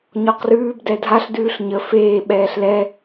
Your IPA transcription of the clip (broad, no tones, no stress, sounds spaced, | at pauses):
ɲ ɔ q r ʉː b d ɛ dʱ a ɬ d ʉː ɬ ɲ ə f eː ɓ ɛː ɬ l ɛ